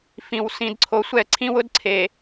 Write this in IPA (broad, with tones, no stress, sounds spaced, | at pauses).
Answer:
f ĩ˨ w s ĩ˨ d ǀʰ o˨ sʷ ɛ˦˨ ǀʰ ĩ˦ w ʊ˦ d ǀʰ e˨